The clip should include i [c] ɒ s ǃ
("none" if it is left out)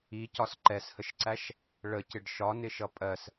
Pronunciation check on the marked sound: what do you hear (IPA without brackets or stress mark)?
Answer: c